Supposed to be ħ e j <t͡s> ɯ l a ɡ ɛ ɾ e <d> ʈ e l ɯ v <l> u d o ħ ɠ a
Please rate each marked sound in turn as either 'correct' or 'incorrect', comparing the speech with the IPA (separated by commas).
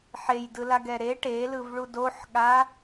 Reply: incorrect, incorrect, incorrect